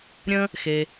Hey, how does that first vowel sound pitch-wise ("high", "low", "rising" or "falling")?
high